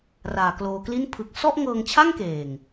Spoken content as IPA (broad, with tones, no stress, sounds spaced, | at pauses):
r aː˨˩ k l oː˧ k l i˥˩ n pʰ ɯ˨˩ k̚ s ɔ˥˩ ʔ ŋ ɤː˧ ŋ t͡ɕʰ a˥˩ ŋ k eː˨˩ ŋ